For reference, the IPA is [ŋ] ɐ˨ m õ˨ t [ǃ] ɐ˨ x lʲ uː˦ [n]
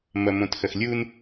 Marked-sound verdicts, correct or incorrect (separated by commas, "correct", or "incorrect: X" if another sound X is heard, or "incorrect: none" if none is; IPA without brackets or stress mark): incorrect: m, incorrect: x, correct